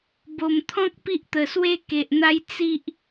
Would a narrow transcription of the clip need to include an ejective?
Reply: no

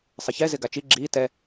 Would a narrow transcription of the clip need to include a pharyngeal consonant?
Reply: no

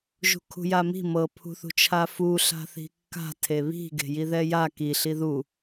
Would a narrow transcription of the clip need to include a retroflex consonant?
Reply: no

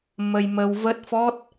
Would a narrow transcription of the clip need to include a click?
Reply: no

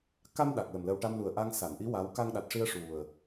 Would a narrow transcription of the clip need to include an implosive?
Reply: yes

